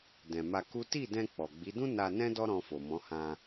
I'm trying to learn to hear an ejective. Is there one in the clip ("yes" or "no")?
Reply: no